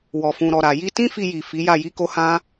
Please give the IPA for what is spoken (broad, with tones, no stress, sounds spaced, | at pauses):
w ɔ˨ f ũ˨ ɾ ɔ˨ ɾ a˨ j i˧ t ĩ˦ f i˧ j i˨ f i˨˦ j a˦˨ j i˧ k o˧ h ã˦